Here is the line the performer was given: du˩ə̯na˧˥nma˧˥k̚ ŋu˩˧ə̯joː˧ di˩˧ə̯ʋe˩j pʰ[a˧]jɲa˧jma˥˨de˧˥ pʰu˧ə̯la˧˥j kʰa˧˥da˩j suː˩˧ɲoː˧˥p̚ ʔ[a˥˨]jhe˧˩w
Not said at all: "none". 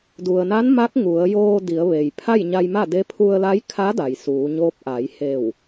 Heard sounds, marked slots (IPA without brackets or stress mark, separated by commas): a˥˨, a˩˧